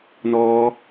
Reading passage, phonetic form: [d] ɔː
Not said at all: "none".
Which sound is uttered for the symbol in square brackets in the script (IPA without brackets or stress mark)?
n